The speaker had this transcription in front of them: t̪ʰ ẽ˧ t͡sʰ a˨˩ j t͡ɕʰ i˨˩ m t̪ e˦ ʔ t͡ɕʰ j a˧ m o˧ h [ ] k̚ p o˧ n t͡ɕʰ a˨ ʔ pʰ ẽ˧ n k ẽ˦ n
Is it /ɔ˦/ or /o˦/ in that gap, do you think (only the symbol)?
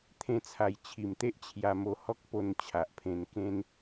ɔ˦